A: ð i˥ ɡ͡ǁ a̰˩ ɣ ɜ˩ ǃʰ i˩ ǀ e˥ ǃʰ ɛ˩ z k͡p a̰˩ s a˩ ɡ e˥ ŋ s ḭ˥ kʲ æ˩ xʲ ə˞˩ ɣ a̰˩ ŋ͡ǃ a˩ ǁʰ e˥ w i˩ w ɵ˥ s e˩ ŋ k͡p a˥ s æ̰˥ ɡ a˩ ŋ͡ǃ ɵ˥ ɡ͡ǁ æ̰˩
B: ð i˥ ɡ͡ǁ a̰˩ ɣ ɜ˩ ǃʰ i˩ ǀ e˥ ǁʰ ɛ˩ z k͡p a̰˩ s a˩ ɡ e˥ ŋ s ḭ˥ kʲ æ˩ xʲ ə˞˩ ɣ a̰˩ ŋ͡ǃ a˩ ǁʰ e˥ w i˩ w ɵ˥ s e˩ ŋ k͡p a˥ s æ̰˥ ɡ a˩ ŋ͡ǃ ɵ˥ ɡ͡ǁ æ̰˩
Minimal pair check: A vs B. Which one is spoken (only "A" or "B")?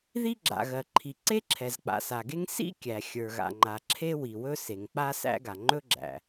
B